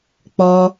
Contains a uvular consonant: no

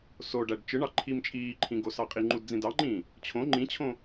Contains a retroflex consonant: yes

